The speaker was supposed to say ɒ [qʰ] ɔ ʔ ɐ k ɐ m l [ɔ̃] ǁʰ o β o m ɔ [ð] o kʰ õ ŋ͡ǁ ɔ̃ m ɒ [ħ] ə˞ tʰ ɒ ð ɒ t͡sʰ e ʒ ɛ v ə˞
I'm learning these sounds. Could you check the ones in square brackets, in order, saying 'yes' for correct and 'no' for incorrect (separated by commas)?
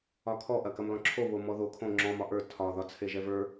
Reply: no, yes, yes, no